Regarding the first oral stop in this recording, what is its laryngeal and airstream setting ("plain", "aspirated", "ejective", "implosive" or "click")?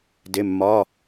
plain